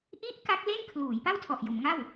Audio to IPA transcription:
ʔi˦˥ʔ ka˦˥k̚le˥˩n kʰluː˩˦j pa˥˩wtʰɔ˨˩ʔjo˩˦mŋa˥˩w

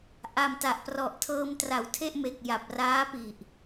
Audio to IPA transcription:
ʔa˨˩mta˨˩ʔprɔ˨˩ʔ tʰɤː˧mtra˩˦wtʰe˥˩ʔme˨˩k̚ ja˨˩p̚raː˦˥pi˨˩ʔ

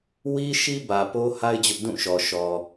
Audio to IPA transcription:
wi˦ʃi˦bä˨ po˦ha˦ɪ̯ d͡ʑʊ˦ʔdũ˦˨ ʃɔ˨ʃɔ˨

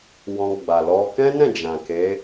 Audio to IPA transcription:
wɔ̃˧ɡ͡ba˨ lɔ˧ kɛ̃˦nɛ̃˦˨ d͡ʒã˨ke˨˦

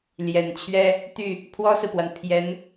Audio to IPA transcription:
ljɛ˨˩nt͡ɕʰɥɛ˥ | t̪y˥˩ | pʰwɔ˥sɹ̩˨pwa˩n pʰjɛ˧˥n

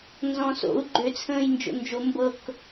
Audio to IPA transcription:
nzɔ̃so̰u̯ ɡ͡ǃøt͡sʰə̃ːj nd͡ʒo̰nd͡ʒo mbɤk

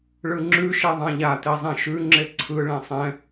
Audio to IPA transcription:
ɭɯŋ͡ǁʉʃɛ ðˤãʎate zˤɛ̃ʃʉŋ͡ǁe ǀʰɯɭẽ sˤɛ̃

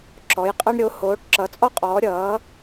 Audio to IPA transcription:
ǁɔ˨˥jqʼʌ˥ɳ ɾʲo˨˥ hoː˨˥ʈǁʌ˨˥t͡sʼɔ˥qʼɔː˨˥ ɾʲʌː˨˥

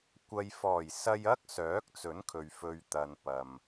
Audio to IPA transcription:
kʷɐ˨jfɔː˨˩j sɐ˧jɐ˥k̚ sœː˨˥k̚t͡sɵ˨˥nkʰɵ˨ɥ fɵ˨ɥt̪ɐ˨n pɐ˨m

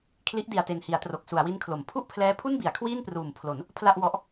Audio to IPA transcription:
kʰli˦˥ʔdi˨˩a̯te˨˩nhi˩˦a̯ tro˨˩k̚ su˩˦a̯wi˦˥nkʰlo˩˦m pʰu˥˩ʔpʰlɛː˦˥pʰu˥˩nbi˩˦a̯ kʰwiː˥˩npruː˩˦m pʰlo˩˦n | pʰla˥˩ʔwɔ˦˥ʔ

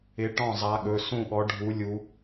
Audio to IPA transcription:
ɪ˨˦ ʈɔ̃˥˩zˤa˨˦ɠɵ˩˧˩ sũ˥˩ɠɔ˨˦ɖʱu˨˦ lʲu˨˦

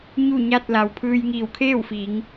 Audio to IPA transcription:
ɲu˥˨ɲa˥˨t̚ la˩wpʰɯː˧jŋiː˧˩w kʰeː˥˨wfiː˩˧ŋ

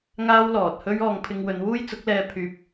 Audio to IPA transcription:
ŋaː˥wlɔː˨t̚ hɵ˥ɥ ɔː˧ŋpʰɪ˧ŋ wɵ˨˧nwuː˥jt͡sʊ˨˥k̚lɛː˧ pʰyː˧p̚

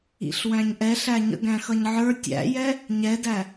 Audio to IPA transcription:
ḭɬwæ̃ɲʔɛɬæ ɲə̰ɡæ̃xʌɲʕə˞ tʲæ̰jɛ | ɲɛdæ

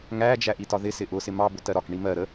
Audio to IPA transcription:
ŋæd͡ʒæ ʔitɒðɪ sɪʔʊsɪ mɑbʊtɜ ɾɒkɳi mɜ ɾə

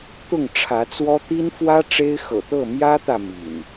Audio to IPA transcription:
t̪ʊ˥˨ŋʈ͡ʂʰä˨˦t͡swɔ˦ t̪i˦nfwä˦ ʈ͡ʂe˦ɪ̯xɤ̰˨˩t̪ɤ˥˨ mjä˦t̪ä˨ mḭ˨˩n

